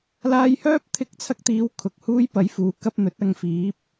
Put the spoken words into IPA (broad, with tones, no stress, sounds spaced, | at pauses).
l aː˧ j h œː˥ p̚ t̪ʰ ɪ˧ k̚ t͡sʰ ɐ˧ k̚ t̪ iː˨˧ w kʰ ʊ˨ k̚ h uː˥ j p ɐ˨˥ j f uː˨˥ k ɐ˧ p̚ n̪ ɵ˨˥ t̚ ɐ˨ ŋ f iː˨˥ p̚